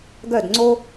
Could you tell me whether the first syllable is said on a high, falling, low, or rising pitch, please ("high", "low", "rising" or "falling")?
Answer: falling